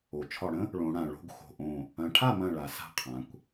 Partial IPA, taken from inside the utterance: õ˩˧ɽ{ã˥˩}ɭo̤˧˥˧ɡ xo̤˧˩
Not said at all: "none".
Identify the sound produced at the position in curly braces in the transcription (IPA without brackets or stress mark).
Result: ã˩